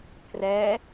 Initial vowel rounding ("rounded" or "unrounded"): unrounded